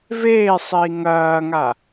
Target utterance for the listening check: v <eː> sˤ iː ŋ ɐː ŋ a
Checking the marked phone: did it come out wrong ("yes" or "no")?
no